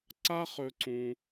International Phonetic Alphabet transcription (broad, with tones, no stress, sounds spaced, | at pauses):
ǀ a˥ χ ɵ˥ ǀ ũ˥